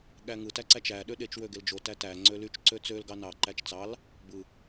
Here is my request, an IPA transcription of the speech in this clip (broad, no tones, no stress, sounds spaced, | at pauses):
ɠ æ ŋ ɯ t æ ǀ æ t͡ʃ æ ɗ ø ɗ e t͡ʃ w ø ɡ e l d͡ʒ o t æ t æ ŋ͡ǀ ø l y t͡ʃ ǀ ø t͡s ø l ɡ ɑ n ɑ ǃ æ t͡ʃ t͡s ɑ l | b ɯ